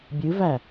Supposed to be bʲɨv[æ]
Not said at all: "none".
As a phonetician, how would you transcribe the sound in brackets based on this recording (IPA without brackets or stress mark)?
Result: æ